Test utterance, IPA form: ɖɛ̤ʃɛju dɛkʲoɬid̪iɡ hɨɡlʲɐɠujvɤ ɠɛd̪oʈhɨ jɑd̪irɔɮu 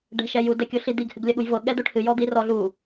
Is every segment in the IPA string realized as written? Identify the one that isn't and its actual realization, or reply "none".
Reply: ɑ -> ɔ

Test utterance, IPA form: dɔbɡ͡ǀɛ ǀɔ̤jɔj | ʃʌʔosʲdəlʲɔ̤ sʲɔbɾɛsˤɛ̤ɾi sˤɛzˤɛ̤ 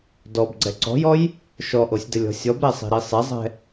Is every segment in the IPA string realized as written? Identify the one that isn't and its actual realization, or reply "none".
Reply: ʌ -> ɔ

